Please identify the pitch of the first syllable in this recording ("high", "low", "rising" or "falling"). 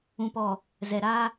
low